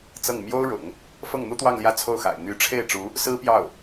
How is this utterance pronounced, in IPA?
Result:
t͡s ɤ˥˩ ŋ m j o˥ ʊ̯ ɻ ʊ̰˨˩˦ ŋ | f ɤ˥˩ ŋ n̪ u˥ t̪ w ɑ˥˧ ŋ l j ä˥˧ t͡sʰ o˥˩ ʊ̯ x a̰˨˩ ɪ̯ n̪ y˧˥ ʈ͡ʂʰ e˥˩ ɪ̯ ʈ͡ʂ u˧˥ | s ɹ̩˥ p j ɑ˥˩ ʊ̯

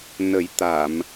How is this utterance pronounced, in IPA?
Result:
n ə˨˩˦ j t̪ a˨˩˨ m

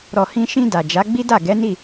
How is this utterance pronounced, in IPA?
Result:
ɾ ɔ˨ h ĩ˧ ʃ ĩ˧ d a˨ d͡ʒ a˨˦ ɡ͡b i˦ d a˦˨ ɡ ɛ˨˦ n i˦˨

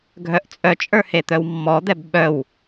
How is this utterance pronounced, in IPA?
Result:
ɡʱ œ ʔ t͡sʼ œ t͡ʃʼ ə˞ h e t̪ œ w mː ɔ d̪ ɛ b ɓ œ w

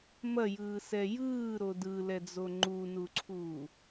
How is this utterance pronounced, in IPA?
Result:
m ɐ j ɯː s ɛ j ɯː ɾ o d ɯ l ɛ d͡z o ŋ͡ǃ u n u ǀʰ uː

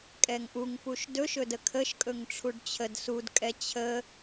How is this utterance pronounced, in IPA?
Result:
kʼ ɛ ŋ ʔ u ŋ p u ʃ d ɵ ʃ ɵ d ə kʰ ə ʃ kʼ ɵ ŋ ʈ͡ʂʰ u ɖ t͡ɕʰ ə d s u d kʼ ɛ t͡ɕʰ ə

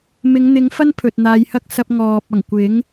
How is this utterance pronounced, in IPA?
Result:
m ɪ˨˧ ŋ n̪ ɪ˨˧ ŋ f ɐ˥ n pʰ ɵ˨ t̚ n̪ aː˨˧ j h ɐ˥ k̚ s ɐ˧ p̚ ŋ ɔː˨ p̚ ɐ˨˩ ŋ kʷ ɪ˨˥ ŋ

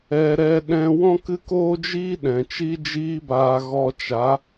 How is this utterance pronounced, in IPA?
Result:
ɛ˧ ɾ ɛ˧ ɗ ɛ̃˧ w ɔ̃˧ k ɨ˧ k oː˧ d͡ʒ iː˧ ɗ ɛ̃˨ t͡ʃ i˦ d͡ʒ iː˦ b aː˧ ɣ ɔ˧ t͡ʃ a˨˦

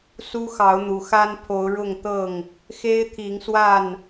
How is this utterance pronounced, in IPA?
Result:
s u˦ x ɑ˨˦ ʊ̯ n̪ u˨˩ x a˦ n pʰ o˨˦ ʊ̯ ɻ ʊ˥˨ ŋ t̪ ɤ˥˨ ŋ | x e˦ ɪ̯ t̪ʰ i˨˦ ŋ s w a˥˨ n

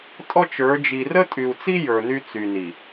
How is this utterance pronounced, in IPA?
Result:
tʼ ɔ˦ t͡ʃ ə˞˨˦ d͡ʒ i˨ r ə˦ tʼ y˨ u̯ t͡s i˦ j ə˞˨ n y˦ t͡s y˨ n i˨

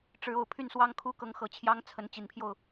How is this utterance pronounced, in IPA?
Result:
ʈ͡ʂ ɻ̩˨˦ o˨˩ ʊ̯ pʰ y˥˨ n s w ɑ˦ ŋ kʰ u˦ k ɤ˨˦ ŋ x ɤ˨˩ t͡ɕʰ j ɑ˦ ŋ t͡sʰ ə˨˦ n t͡ɕ i˨˩ n pʰ j o˥˨ ʊ̯

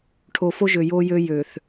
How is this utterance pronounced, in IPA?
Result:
ʈʰ o˨ f o˦ ʒ ø˨ j o˦ j ø˦ j ø˨ θ

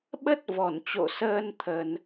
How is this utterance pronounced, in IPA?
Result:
ɓ ə˦˥ t̚ v ɔ˧˩ n t͡ɕ o̰˧˨ s əː˧ n t̪ʰ ə˧ n

